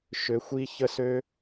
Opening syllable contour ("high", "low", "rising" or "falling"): rising